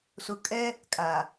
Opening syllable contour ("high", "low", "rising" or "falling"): low